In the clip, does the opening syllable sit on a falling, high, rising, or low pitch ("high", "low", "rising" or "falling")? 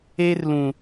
high